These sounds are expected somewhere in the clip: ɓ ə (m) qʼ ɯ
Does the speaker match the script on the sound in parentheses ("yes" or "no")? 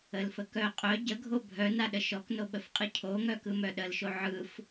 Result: no